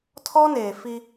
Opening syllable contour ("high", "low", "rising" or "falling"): high